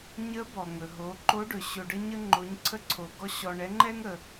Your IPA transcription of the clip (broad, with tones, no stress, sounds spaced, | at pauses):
ɲ ə˧˥ b ɔ˩ ŋ ɵ˩ ɦ o˩˧ ǃ o˧˥ ɖ ɵ˩ ɕ ɵ˧ ɖ ə˥ ɲ ə˥ ŋ͡ǃ o˧˥ ɲ ǀʰ ə˥ ǀʰ o˧ ɡ ɔ˥ ɕ ɔ˧ ɳ ɛ˧˥ ŋ͡ǃ ɛ˥ ŋ ə˩˧